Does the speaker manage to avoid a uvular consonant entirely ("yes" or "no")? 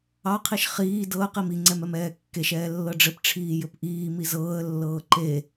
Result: no